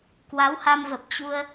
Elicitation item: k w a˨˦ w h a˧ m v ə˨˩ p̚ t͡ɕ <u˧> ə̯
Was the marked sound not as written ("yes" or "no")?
no